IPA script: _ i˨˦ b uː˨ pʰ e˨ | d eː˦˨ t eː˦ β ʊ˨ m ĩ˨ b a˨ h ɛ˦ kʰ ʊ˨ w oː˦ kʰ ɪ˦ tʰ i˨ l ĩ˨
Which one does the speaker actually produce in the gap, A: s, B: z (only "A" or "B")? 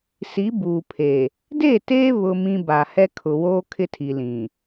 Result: A